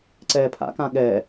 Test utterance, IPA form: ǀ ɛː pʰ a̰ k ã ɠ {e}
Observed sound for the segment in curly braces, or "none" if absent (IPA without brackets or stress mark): ɛ